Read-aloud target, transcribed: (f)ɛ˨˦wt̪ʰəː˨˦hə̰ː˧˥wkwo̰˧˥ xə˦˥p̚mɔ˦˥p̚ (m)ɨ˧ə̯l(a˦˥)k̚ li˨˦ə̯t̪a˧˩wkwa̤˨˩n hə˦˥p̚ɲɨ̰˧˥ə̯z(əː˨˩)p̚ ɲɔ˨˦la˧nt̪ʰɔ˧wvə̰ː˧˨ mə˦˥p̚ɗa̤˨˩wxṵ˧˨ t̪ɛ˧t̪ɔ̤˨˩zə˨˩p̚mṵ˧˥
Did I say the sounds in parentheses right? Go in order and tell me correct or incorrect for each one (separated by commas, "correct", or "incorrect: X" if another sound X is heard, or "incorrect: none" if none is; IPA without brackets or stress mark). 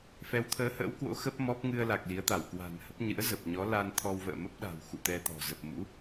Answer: correct, incorrect: ŋ, incorrect: a˨˩, correct